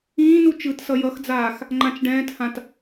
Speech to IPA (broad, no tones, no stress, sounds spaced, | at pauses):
ĩː n u t͡ʃ ɯ t s ʌ j ʌ x d͡z aː x | ŋ͡ǃ ã t͡ʃ ɖ ɛ̃ː t h ã t